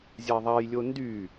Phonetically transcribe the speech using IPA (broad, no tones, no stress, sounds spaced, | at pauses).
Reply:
zʲ a ðˤ a j lʲ o n d y